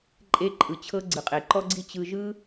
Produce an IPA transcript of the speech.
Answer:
ǃʼ e˧ ǃʼ ɯ˨ t͡ɕʰ ɤ˧ ɡ͡ǀ ɯ˨ qʼ e˨ ǃ ɔ˦ ɡ͡ǀ i˦ t͡ɕ ɯ˧ ʒ ɯ˦

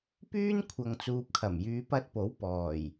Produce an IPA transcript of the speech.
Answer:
p yː˥ n kʷʰ ɐ˨ ŋ t͡s uː˨ p̚ kʰ ɐ˨˩ m j yː˨˧ p ɐ˧ t̚ p o˨˥ w p ɔː˨˩ j

